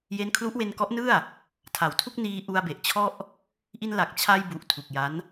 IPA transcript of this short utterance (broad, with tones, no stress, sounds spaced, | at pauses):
j e˦˥ n kʰ l u˦˥ ʔ w e˧ n k ɔ˦˥ ʔ n ɯ˥˩ a̯ | tʰ a˨˩ w tʰ u˥˩ k̚ n iː˧ ʔ u˧ a̯ b e˨˩ ʔ t͡ɕʰ ɔ˥˩ ʔ | ʔ i˧ n l a˨˩ k̚ t͡ɕʰ a˧ j b u˨˩ ʔ tʰ u˨˩ k̚ j a˦˥ n